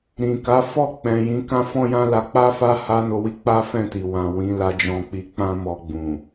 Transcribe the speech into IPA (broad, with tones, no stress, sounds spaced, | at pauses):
ɾ ĩ˨ k a˨˦ f ɔ˦˨ k͡p ɛ̃˨ j ĩ˨˦ k ã˦ f ɔ̃˦ j ã˦ l a˧ k͡p a˦ f a˦ h a˦ n o˧ w i˦ k͡p a˦ f ɛ̃˦˨ t i˨ w ã˨ w ĩ˨˦ l a˧ d͡ʒ ɔ̃˧ k͡p i˧ k͡p ã˦ m ɔ˧ ɡ͡b ũ˨